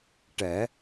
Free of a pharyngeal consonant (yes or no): yes